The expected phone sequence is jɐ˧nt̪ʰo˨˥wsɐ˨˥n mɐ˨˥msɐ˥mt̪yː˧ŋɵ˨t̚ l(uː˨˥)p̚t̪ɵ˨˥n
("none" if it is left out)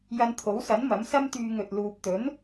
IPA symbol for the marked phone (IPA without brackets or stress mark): uː˨